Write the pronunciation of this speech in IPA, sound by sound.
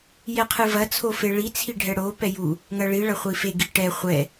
j ɛ qʰ ɨ v ɐ t͡sʰ o f e ɭ i t͡sʰ i ɖʱ ɛ ɽ o p ɛ j u | ŋ ɐ ɭ i ɭ ɐ χʷ i f e ɡ i ʈ ɛ χʷ ɛ

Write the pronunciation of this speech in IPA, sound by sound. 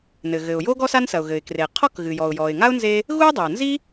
n ɘ˩ ɣ ɘ˩ ʊ̯ j o˥ ɡ ɔ˥ s a˥ n s ɐ˩ ʊ̯ ɣ ɘ˩ ɪ̯ k r e˩ qʰ ɔ˥ k ɣ ɨ˩ j ɔ˩ ʊ̯ j ɔ˩ ɪ̯ ŋ a˥ ʊ̯ n z e˥ | ɣ u˥ j dˤ e˩ ʊ̯ n z i˥

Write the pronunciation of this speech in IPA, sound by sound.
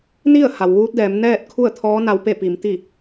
n i˥˨ ə̯ h a˩ w ʋ uː˧˥ t̚ d ɛː˩˧ m n ɛː˥˨ t̚ kʰ u˥˨ ə̯ t̪ʰ ɔː˧˥ n a˧ w p e˥˨ p i˩˧ m t̪ i˥˨

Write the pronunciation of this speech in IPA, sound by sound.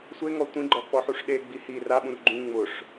sʷ e ŋ ɔ tʷ ĩ ɡ͡ǃ ɔ k͡p ɔ ħ u ʂ ɗ e ɡ͡b i h i r a ɓ ũ r ɡ͡ǃ ũ ŋ͡m ʊ ʂ

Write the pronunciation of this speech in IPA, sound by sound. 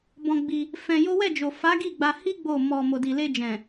b ɔ̃˧ ɡ͡b i˧ | f ɛ̃˧ j o˦ w ɛ˦˨ d͡ʒ o˨ f a˨˦ ɡ i˦˨ ɡ͡b a˧ h i˦ ɡ͡b o˦˨ m ɔ˧ m o˨ d i˨ l e˧ d͡ʒ ɛ̃˨

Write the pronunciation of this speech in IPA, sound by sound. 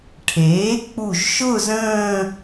ʈʰ eː˩˥ k͡p u˧˩ ʒ ʃ ʊ˥˧ z ə̃ː˥˧

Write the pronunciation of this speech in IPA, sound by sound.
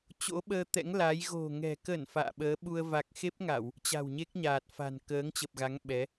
t͡ɕ o̰˧˥ ɓ əː˧ t̪ ɛ̰˧˥ ŋ l a˨˦ j ɣ o̤˨˩ ŋ ɛ̤˨˩ k ə˧˩ n f a̰ː˧˨ ɓ əː˨˦ ɓ u˧ ə̯ v a˨˩ k̚ x e˦˥ p̚ ŋ a˧˩˨ w | t͡ɕ a̤˨˩ w ɲ e˦˥ k̚ ɲ aː˨˩ t̚ f a̤˨˩ n k əː˨˦ ŋ t͡ɕ ə˨˩ p̚ ɣ a˨˦ ŋ ɓ ɛ˨˦

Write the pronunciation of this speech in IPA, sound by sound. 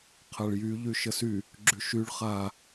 qʰ a ɭ j y ʎ y ʃ ə s y | ɡ͡ǁ y ʃ y ɭ χ a

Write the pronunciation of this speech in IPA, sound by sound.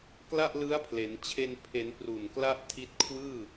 k l a˥˩ ʔ l ɯ˦˥ a̯ pʰ l e˩˦ n t͡ɕʰ e˧ n pʰ e˩˦ n p r u˨˩ n k l a˥˩ ʔ tʰ i˦˥ t̚ kʰ w ɯː˥˩

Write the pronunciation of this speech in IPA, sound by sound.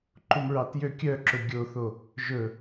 ǃ u m ɹ ɑ t j ø kʲ œ ǁ ɵ ɡʲ o θ o | ʒ ɵ

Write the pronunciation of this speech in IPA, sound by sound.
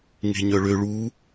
ŋ e̤ ɲ œ ɭ ø ɭ u

